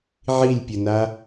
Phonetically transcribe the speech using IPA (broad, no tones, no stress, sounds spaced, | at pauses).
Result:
ʕ i lʲ pʲ ʊ n a